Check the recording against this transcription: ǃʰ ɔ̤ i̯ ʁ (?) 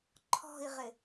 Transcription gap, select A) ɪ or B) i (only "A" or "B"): A